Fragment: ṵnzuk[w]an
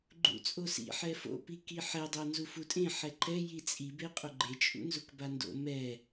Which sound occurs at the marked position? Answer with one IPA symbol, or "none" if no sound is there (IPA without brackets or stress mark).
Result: b